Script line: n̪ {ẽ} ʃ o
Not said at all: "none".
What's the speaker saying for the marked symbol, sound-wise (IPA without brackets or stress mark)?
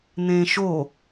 ẽ